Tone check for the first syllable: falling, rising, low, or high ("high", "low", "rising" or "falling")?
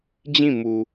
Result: falling